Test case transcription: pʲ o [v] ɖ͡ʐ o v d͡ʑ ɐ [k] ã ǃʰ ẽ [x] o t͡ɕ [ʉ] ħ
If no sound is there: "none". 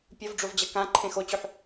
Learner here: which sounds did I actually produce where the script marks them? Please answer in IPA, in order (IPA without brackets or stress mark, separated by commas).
v, k, x, ʉ